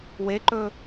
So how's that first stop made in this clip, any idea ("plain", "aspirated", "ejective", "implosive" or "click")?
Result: click